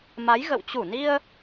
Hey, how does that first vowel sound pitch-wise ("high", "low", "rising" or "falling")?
rising